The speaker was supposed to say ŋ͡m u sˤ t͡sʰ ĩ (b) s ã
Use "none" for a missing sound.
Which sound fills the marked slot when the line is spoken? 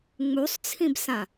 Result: b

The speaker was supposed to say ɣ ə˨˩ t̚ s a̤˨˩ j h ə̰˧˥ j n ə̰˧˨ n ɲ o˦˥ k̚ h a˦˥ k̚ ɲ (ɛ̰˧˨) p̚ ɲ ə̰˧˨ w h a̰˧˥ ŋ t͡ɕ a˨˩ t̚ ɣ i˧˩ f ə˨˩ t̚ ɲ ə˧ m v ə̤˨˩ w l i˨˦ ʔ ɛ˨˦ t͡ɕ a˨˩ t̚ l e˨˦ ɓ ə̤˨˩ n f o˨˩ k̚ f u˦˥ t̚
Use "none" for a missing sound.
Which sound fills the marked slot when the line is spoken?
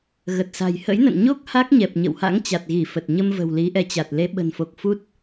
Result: ɛ˨˩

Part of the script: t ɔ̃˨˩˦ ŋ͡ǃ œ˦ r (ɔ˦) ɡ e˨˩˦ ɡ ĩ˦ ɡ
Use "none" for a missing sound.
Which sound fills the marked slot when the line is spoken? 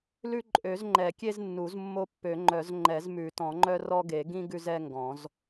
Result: ɔ˦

